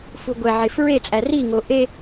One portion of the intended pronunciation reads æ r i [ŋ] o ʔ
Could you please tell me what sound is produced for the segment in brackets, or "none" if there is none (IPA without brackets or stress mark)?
ŋ